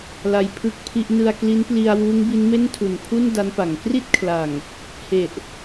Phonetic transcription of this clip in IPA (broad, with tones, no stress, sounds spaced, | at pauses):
l a˧ j pʰ ɯ˥˩ k̚ pʰ i˥˩ ʔ n ɯ˧ a̯ k l i˦˥ n p l i˧ a̯ w uː˦˥ ŋ b i˦˥ n m e˥˩ n tʰ u˨˩ n pʰ u˥˩ n d a˦˥ n p a˩˦ ŋ k r i˥˩ t̚ kʰ l a˨˩ ŋ | h e˨˩ ʔ